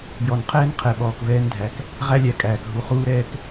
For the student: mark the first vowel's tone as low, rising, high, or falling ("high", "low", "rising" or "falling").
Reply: low